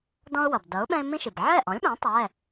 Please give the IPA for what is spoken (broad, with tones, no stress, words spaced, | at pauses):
dɔ̃˦ʊ̯wʌ˩b dʌ˩˥ʊ̯ɓɛ̃˦ɪ̯ mĩ˦ʃi˩b ʕɛ˥˩ ʔɔ̃˩˥lʲɓɛ̃˩˥ tˤɛ˩˧˩